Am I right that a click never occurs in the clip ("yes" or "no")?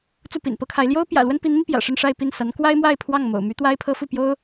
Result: yes